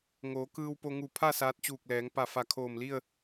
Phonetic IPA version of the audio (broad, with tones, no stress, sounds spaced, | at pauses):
ŋ oː˩˧ k ɯː˧ w p o˧ ŋ u˧˩ pʰ a˥˨ s aː˧˥ t̚ t͡ɕ uː˧˩ k̚ l ɛː˩˧ ŋ p a˧˩ f a˧˩ kʰ oː˧˩ m l i˥˨ ə̯